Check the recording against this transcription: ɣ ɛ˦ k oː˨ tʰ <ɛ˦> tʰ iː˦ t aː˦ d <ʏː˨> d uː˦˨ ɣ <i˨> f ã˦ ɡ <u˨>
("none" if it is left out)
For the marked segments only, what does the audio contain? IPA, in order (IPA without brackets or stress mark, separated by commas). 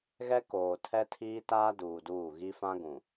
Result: ɛ˦, uː˨, i˦, ũ˨